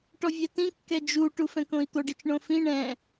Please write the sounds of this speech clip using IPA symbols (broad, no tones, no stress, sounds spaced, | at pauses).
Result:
ʈ ɔ vʲ ɛ t ĩ kː ɛ d͡ʒ u ʈ u f ɛ̃ k õ i̯ t̪ o ɖ i t͡ʃ ɳ õ f ĩ ɳ ɛ̃